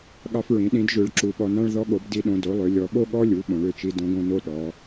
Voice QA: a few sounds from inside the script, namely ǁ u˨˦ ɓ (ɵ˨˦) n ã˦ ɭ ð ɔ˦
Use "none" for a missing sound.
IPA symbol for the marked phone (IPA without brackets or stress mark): ɔ˨˦